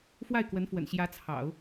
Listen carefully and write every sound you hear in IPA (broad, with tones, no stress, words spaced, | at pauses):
fwa˥˩ɪ̯kwə˧˥nfwə̰˨˩n ɕjä˧˥t͡sʰɑ̰˨˩˦ʊ̯